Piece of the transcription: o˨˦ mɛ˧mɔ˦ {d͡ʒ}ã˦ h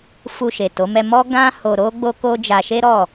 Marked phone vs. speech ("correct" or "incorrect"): incorrect